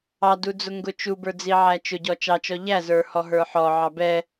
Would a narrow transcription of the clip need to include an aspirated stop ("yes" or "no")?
no